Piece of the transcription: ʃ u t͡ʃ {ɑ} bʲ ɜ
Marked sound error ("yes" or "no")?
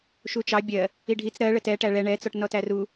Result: no